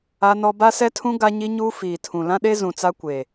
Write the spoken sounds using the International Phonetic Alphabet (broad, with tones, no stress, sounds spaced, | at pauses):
a˦ n ɔ˦ b a˦ s ɛ˦ tʰ ũ˦ ɡ a˦ ɲ i˦ ɲ uː˦ f iː˨ tʰ ũ˨ l ã˦ ɗ e˦ z ũ˨ t͡s a˦ kʷ e˨